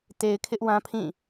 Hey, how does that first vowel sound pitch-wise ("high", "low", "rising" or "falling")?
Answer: low